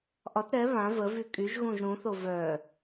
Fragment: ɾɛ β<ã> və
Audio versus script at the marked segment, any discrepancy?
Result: no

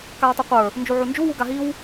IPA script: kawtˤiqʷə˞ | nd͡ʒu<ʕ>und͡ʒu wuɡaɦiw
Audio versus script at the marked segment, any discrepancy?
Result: no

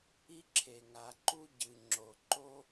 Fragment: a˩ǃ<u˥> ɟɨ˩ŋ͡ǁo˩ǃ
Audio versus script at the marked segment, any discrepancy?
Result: no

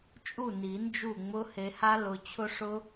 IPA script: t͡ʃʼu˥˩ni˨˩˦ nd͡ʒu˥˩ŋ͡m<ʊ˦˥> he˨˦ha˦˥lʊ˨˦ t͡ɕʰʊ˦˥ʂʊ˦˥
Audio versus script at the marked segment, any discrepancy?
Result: no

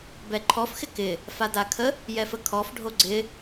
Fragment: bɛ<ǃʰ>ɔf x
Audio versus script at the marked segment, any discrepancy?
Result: no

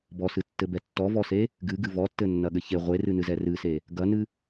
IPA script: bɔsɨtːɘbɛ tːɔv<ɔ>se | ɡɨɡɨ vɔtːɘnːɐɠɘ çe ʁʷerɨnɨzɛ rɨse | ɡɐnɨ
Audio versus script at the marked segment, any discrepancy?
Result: no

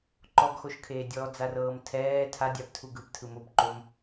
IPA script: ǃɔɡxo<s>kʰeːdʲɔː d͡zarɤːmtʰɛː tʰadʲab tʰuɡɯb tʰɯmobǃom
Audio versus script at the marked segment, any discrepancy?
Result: yes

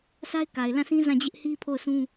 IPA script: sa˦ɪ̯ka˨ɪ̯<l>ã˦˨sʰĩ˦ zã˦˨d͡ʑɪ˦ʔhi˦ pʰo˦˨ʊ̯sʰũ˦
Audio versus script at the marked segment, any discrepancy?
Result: no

